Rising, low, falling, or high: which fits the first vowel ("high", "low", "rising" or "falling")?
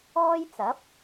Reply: high